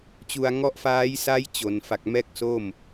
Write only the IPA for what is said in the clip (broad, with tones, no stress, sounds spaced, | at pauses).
t͡ɕ u˧ a̯ ŋ ɔ˦˥ ʔ f aː˦˥ j s aː˦˥ j t͡ɕ o˩˦ n f a˨˩ k̚ m ɛː˥˩ k̚ s o˥˩ m